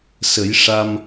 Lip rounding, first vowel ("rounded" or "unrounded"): unrounded